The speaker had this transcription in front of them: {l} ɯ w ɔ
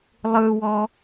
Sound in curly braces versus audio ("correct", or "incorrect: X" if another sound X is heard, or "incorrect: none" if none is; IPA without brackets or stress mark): incorrect: lˠ